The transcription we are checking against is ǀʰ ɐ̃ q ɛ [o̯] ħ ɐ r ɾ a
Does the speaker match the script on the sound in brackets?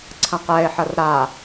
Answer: no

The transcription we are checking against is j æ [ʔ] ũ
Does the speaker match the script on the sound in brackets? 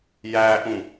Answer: yes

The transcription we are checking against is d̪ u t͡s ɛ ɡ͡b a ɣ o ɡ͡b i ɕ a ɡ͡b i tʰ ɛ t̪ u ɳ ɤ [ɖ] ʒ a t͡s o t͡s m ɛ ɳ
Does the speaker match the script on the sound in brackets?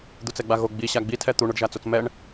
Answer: yes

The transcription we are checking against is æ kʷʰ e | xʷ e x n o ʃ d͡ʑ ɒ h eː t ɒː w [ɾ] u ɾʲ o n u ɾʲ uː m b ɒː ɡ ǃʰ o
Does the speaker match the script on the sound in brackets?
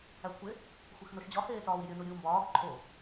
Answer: no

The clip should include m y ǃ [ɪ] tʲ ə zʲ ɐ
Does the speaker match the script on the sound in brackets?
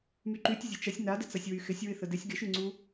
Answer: no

